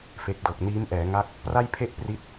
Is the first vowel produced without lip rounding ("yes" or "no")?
yes